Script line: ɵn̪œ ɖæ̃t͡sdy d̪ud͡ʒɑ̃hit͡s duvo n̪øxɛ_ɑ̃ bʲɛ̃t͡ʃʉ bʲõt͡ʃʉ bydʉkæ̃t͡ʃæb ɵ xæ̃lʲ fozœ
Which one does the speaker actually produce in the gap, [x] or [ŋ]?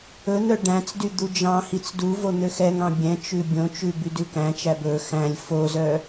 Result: ŋ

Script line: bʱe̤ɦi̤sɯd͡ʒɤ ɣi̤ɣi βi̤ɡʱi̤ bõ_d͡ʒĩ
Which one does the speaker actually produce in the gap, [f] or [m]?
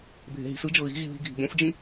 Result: f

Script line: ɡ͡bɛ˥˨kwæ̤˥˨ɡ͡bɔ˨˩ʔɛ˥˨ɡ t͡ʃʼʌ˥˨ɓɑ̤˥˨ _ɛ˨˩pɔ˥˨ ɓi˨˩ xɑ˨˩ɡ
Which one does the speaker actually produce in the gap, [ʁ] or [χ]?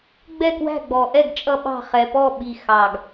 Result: χ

